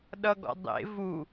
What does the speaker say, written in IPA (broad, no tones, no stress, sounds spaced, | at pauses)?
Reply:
ɗ ʌ ɡ ɔ̰ dˤ ḛ v u